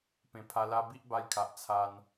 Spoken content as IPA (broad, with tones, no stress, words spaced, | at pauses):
pẽ˨˩pʰa˧ la˧bi˦ʔba˧jkʰa˨ʔ t͡sʰa˧n